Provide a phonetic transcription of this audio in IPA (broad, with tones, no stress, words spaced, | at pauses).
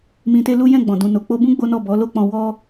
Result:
mĩ˧te˦lu˦ jɛ̃˦˨ɡ͡bɔ̃˨ dũ˨no˨ k͡po˧bũ˦ ɡ͡bo˦nɔ˦˨ bɔ˨˦lo˦k͡pɔ̃˧wɔ˦